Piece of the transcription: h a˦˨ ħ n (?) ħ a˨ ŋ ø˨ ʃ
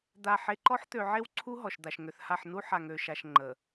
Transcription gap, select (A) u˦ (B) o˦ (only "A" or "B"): A